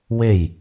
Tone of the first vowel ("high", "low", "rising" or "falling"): falling